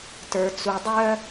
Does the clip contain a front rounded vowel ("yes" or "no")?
yes